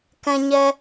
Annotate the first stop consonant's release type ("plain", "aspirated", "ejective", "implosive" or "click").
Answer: plain